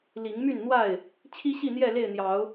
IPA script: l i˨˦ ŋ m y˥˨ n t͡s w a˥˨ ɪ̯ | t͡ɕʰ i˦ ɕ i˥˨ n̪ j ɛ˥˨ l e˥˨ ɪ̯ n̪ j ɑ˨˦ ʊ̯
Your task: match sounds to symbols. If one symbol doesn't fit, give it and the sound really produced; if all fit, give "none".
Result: t͡s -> n̪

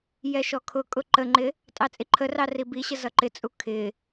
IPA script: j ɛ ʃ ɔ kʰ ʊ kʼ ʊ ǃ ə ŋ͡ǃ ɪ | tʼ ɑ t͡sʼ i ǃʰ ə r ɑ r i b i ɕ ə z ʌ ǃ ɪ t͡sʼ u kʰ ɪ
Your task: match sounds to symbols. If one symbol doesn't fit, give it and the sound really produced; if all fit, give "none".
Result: none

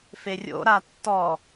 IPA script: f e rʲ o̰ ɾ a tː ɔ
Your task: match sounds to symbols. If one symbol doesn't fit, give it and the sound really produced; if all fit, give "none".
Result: none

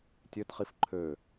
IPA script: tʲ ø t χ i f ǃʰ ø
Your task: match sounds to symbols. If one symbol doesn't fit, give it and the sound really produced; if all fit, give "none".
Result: none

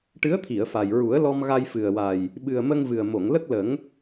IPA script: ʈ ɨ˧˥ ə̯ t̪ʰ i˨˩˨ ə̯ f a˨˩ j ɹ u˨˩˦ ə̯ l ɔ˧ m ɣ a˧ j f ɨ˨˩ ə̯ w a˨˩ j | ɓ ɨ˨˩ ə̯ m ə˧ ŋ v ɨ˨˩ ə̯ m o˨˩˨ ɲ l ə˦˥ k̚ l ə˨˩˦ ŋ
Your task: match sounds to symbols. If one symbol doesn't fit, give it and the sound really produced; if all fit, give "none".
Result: ɲ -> ŋ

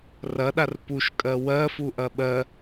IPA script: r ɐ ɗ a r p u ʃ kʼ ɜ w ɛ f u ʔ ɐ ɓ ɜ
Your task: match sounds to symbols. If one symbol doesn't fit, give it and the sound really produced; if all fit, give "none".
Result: ɛ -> ɜ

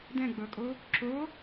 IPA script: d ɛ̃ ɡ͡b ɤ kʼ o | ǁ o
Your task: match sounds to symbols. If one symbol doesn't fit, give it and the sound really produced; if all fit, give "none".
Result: none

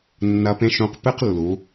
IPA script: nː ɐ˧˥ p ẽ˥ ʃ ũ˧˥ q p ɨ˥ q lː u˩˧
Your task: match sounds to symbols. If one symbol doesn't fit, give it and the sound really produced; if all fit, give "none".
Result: none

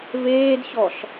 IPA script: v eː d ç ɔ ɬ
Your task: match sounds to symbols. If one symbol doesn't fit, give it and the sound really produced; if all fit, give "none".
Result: none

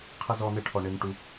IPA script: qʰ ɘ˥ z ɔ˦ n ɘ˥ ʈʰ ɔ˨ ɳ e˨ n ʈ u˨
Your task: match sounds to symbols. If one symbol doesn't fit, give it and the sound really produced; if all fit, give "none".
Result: none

